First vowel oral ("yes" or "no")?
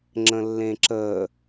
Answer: no